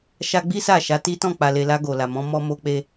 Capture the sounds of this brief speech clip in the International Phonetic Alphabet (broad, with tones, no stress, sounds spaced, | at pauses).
ʃ a˧ ɡ͡b i˦ s a˦˨ ʃ a˨˦ t i˦ t ɔ̃˦˨ k͡p a˨ l e˨ l a˧ ɡ o˨ l a˨ m ɔ̃˨˦ m ɔ˧ m o˧ k͡p e˧